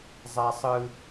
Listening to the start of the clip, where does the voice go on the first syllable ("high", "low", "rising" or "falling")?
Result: high